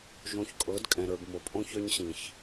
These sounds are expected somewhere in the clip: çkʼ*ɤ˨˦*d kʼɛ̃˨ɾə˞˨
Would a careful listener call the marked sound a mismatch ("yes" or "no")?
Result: no